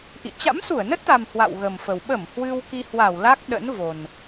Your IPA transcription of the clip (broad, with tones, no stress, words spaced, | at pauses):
ʔḭ˧˨ t͡ɕa̰˧˥msu˧˩ə̯nə˦˥t̚t̪a˨˩m hwa̰˧˨wɣə˨˩mfə˨˩w ɓə˧˩m hwɨ˧wki˧hwa˧˩wla˦˥k̚ ɗə̰˧˥nvo˨˩n